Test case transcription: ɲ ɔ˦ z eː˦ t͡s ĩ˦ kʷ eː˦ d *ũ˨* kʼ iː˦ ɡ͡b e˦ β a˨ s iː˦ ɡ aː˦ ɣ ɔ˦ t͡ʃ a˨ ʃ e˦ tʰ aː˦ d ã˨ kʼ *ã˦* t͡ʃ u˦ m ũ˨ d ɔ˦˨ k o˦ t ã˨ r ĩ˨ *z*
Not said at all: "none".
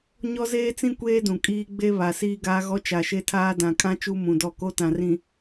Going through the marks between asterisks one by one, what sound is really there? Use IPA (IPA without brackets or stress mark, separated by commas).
ũ˨, ã˦, none